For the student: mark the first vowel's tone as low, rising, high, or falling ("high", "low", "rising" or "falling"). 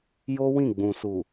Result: high